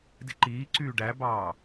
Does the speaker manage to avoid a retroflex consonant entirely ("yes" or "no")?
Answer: no